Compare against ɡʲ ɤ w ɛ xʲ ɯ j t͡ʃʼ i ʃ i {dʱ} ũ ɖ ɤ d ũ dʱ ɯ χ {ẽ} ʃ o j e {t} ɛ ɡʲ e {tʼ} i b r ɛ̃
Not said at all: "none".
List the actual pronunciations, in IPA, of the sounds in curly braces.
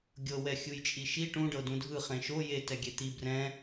ʈ, ẽ, t, t̪

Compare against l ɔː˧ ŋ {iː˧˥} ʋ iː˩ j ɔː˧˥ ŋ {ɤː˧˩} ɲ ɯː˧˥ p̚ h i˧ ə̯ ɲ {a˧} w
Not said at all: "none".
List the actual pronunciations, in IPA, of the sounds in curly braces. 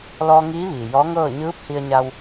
iː˧˥, ɤː˥˨, a˧

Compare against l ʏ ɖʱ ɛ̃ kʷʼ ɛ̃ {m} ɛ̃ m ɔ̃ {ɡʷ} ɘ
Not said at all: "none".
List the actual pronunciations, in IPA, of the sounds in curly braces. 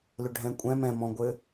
m, ɡʷ

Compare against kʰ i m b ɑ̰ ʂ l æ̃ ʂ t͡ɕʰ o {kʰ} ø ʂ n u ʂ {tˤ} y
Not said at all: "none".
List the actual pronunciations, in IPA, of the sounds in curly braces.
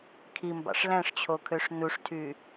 kʰ, tʰ

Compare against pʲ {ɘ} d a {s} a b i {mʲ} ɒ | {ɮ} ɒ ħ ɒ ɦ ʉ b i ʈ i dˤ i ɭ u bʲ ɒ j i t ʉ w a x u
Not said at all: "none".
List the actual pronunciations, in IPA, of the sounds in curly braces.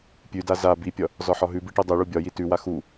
ʉ, z, pʲ, z

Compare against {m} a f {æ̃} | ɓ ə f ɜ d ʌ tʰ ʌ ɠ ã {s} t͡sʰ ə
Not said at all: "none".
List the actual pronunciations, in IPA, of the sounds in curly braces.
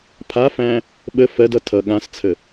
pʰ, æ̃, s

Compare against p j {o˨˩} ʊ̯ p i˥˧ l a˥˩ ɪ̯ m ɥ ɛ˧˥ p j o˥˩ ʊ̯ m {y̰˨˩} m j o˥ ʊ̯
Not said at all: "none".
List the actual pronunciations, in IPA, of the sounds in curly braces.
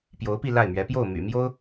o˧˥, y̰˨˩

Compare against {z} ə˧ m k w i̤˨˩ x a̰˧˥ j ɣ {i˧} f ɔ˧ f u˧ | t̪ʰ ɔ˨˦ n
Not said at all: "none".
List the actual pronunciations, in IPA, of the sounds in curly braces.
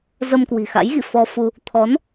z, ḭ˧˨

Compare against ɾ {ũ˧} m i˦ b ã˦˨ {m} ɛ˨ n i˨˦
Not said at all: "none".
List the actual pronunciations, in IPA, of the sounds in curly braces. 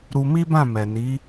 u˧, m

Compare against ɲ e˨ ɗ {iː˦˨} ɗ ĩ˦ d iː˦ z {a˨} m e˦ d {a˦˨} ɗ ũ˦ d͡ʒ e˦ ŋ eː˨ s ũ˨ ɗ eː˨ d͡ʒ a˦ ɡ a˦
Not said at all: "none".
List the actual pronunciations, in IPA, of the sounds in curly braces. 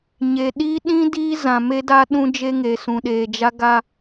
iː˦, ã˨, a˦

